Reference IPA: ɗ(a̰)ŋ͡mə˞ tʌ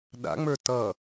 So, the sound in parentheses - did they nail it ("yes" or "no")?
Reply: yes